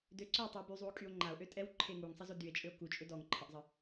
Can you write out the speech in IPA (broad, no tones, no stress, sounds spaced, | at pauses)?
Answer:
d ø ǀ œ o̯ tˤ u e̯ b y zˤ u o̯ kʼ y o̯ ŋ͡ǃ a o̯ ʔ ø tʼ ɛ w ǃʰ e ŋ u ŋ sˤ ə z o d y e̯ t͡ʃʼ ø o̯ k u t͡ʃʼ ø d ɔ ŋ ǃʰ ə ʔ zˤ ə